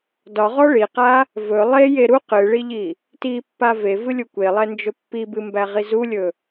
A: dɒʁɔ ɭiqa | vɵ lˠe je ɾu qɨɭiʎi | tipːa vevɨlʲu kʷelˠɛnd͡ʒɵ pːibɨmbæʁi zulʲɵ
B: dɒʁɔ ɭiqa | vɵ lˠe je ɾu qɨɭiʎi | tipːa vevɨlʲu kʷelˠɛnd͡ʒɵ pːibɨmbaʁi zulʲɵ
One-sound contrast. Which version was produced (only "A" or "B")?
A